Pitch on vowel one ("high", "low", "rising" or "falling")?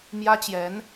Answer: high